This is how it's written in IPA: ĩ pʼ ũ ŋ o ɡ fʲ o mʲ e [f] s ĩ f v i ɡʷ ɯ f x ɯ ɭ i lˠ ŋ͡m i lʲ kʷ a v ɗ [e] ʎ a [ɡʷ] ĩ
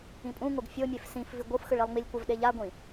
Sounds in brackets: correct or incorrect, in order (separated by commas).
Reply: correct, correct, correct